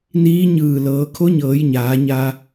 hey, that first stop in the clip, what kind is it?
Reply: aspirated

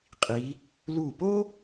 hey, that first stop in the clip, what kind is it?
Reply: ejective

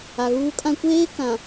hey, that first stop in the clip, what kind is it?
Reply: ejective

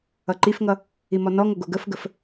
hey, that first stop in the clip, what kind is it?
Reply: click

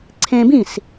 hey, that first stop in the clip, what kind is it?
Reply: click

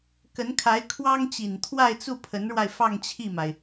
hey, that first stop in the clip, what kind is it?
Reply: plain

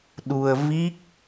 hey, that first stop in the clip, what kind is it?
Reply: implosive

